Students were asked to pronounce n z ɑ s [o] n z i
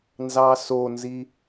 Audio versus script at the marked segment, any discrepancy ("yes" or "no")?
no